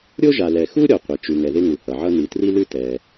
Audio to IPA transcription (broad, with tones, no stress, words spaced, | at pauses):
ɾʲo˥ʒa˩lɛ˩ xu˥ ɾʲɔ˩qʷɪ˩ t͡ʃʉ˩ŋɛ˩ ðɪ˥ŋu˩hʌ˩ʕʌ˥ ni˩tri˥lʉ˥ tɛ˩